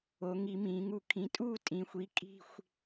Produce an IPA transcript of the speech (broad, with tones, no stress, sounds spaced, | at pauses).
o˩˧ ŋ i˧˩˧ m ĩː˩˧ ŋ u˧˩ kʰ ĩ˩˥ tʼ uː˥˨ tʼ ĩ˩˧ xʷ i˩˥ kʼ i̤˥˨ xʷ